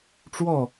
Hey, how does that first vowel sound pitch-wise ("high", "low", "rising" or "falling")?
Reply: falling